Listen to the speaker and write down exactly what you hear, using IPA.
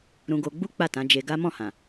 ɾũ˧ɡo˧ɡ͡bu˦ k͡pa˦˨tã˨˦ d͡ʒe˧ɡa˦ mɔ̃˦˨hã˨

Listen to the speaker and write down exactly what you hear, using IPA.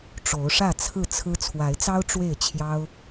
ʈ͡ʂo˨˦ʊ̯ʂä˥˨t͡sʰɹ̩˥˨t͡sʰɹ̩˦ t͡sʰwa˨˦ɪ̯t͡sɑ˦ʊ̯ ʈ͡ʂwe˥˨ɪ̯t͡ɕʰjɑ˦ʊ̯

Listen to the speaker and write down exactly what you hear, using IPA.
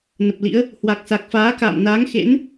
nə˨˩p̚lḭ˧˥ə̯ | hwa˨˩k̚sa˨˩k̚ faː˨˦ka̰ː˧˨mnaː˨˦ŋ xḛ˧˥n

